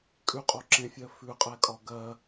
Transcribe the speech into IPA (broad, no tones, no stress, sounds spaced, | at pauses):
kʼ ʉ qʼ o ǁ ẽ fʲ ɜ f ʉ qʼ ɛ kʼ ɒ ɡ ɜ